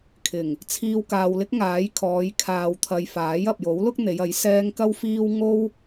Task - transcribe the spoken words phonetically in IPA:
kʰ ɪ˨˩ ŋ | t͡sʰ iː˧ w k aː˨ w l ɪ˥ k̚ ŋ aː˨˥ j kʰ ɔː˨˧ j kʰ aː˨ w t̪ʰ ɐ˨ j f aː˨˥ j ɐ˨ p̚ j o˨˥ w l ʊ˥ k̚ n̪ e˨˧ j ɐ˨˥ j s ɛː˧ ŋ k ɐ˥ w f iː˥ w ŋ o˥ w

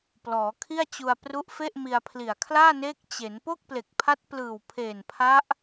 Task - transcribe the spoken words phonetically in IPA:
p l ɔː˩˦ kʰ i˥˩ a̯ t͡ɕ u˧ a̯ p r u˦˥ ʔ f e˥˩ ʔ m i˧ a̯ pʰ l i˨˩ a̯ kʰ l aː˥˩ n eː˦˥ k̚ t͡ɕ e˩˦ n p o˥˩ k̚ p l e˨˩ k̚ pʰ a˦˥ t̚ p l ɯː˨˩ w pʰ eː˨˩ n pʰ a˦˥ ʔ

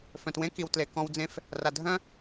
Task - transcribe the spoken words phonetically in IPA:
f œ̃˨ t w ẽ˦ k i˨ w t l e˨ k ɔ̃˧ w d͡z ẽ˧ f | r a˨ dʱ œ̃˦

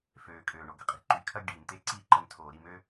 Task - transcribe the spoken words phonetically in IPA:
f øː˨ kʼ øː˨ ɳ o˨ ɡ ə˧ qʼ i̤˧ ǃ y˨ kʰ ɐ˦ ɡ ɖ iː˨ m t̪ e˦ ǀ i˦˨ ǃ ə˧ m tʰ oː˨ ɾ i˦˨ m ø˦

